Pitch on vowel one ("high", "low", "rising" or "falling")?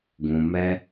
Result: low